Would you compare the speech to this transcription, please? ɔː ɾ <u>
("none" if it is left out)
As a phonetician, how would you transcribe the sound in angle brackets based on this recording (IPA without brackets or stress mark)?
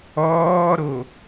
o